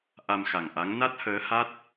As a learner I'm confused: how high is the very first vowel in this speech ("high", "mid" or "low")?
low